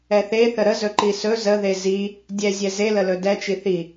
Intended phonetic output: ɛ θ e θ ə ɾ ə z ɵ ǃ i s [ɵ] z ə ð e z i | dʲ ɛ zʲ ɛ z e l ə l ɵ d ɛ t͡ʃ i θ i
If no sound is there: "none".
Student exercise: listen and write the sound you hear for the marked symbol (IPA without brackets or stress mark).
ɵ